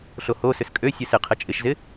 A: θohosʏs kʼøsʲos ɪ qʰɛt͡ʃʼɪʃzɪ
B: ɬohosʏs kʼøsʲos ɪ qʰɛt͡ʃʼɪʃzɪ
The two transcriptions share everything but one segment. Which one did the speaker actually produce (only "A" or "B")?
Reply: B